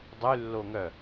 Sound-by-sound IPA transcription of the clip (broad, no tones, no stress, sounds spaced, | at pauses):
dˤ y lː o ŋ œ